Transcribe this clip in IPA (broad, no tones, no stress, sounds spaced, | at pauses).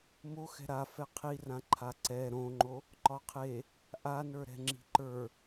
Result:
m o x ɛ̤ ɾ a f ɛ qʰ i r ã ǃʰ a ǀ ɛ ɾ õ ŋ͡ǃ o | ǃ ɒ qʰ e | ʔ a n ə˞ ɾ ɛ̤ ŋ͡ǁ i̤ ǃ ə˞